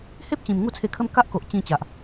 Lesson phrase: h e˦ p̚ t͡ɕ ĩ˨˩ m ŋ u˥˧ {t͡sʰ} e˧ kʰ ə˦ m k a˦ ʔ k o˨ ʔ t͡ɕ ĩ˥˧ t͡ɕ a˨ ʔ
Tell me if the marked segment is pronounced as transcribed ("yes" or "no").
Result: yes